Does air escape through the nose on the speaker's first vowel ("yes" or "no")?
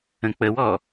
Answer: yes